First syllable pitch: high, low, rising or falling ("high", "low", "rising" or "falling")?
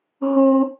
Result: high